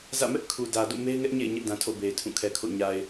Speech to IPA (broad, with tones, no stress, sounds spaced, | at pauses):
z ä̰˦˨ m ɛ˦ ʔ kʰ u˨ d ä˨ d o̰˦˨ m e˦ ɪ̯ ŋ ɛ˦ ʔ ɲ ḛ˦˨ ɪ̯ ɲ ɛ˦ ʔ d ã˨ tʰ o̰˦˨ b e˨ ɪ̯ tʰ ũ˦˨ kʰ ɛ˨ kʰ o̰˦˨ ɲ a˨ ɪ̯